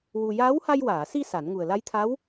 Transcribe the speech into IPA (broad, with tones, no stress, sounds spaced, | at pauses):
w u˧ j aː˧˥ w h a˧ j w aː˨˩˨ s i˧ s a˨˩˦ n ŋ u˨˩ ə̯ l a˧˥ j t̪ʰ a˧˥ w